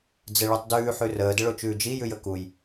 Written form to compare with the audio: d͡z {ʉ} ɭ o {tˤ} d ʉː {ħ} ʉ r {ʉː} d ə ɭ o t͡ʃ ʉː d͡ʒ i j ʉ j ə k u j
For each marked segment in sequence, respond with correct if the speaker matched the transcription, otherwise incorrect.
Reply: incorrect, correct, correct, incorrect

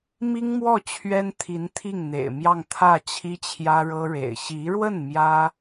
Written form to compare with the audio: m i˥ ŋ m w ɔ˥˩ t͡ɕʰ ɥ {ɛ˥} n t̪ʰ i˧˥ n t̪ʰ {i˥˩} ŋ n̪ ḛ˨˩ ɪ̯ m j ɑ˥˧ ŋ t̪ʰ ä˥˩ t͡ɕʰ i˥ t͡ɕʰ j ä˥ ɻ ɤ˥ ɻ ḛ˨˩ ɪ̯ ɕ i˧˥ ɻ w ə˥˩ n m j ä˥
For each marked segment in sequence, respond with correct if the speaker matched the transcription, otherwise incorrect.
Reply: correct, correct

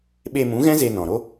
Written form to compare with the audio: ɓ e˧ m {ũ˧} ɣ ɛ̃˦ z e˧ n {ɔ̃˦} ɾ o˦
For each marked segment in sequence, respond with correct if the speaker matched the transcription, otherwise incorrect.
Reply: incorrect, incorrect

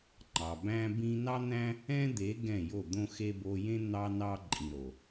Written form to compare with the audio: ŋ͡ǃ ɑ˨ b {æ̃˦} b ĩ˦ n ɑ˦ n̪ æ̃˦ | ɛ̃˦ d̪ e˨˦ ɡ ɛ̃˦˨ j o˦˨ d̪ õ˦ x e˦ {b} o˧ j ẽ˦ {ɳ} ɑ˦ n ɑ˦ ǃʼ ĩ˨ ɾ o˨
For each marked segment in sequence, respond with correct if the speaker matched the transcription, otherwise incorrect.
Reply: correct, correct, incorrect

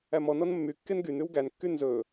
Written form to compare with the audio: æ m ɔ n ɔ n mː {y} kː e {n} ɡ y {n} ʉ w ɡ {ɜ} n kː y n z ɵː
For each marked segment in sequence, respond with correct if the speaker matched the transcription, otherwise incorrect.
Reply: correct, correct, correct, incorrect

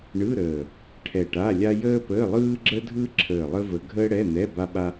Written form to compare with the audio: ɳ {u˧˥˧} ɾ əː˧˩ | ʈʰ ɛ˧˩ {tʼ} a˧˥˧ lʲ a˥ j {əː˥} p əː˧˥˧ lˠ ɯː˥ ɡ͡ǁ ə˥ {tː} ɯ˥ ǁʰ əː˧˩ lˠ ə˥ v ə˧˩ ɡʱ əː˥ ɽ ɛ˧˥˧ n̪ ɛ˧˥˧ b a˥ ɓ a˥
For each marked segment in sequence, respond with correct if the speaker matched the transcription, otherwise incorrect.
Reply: incorrect, incorrect, correct, incorrect

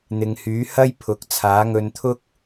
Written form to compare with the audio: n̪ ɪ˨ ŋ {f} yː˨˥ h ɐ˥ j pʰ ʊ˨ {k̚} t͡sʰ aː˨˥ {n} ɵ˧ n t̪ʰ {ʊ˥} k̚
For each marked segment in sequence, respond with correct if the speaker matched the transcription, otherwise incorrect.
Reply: incorrect, correct, incorrect, correct

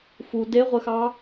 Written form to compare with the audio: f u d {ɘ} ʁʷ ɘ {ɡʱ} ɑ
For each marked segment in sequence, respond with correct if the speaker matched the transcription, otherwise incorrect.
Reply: incorrect, incorrect

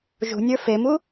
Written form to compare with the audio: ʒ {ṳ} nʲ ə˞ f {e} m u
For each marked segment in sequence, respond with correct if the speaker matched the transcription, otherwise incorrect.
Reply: correct, correct

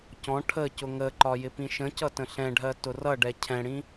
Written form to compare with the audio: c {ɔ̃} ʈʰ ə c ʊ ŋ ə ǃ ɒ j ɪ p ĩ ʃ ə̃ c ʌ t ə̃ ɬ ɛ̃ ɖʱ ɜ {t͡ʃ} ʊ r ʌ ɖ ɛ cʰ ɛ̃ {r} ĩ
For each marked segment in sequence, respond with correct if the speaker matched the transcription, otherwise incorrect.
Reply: correct, incorrect, incorrect

